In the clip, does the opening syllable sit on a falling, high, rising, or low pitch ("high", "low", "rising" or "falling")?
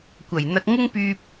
low